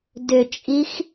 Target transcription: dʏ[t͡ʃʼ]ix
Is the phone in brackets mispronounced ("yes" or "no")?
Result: no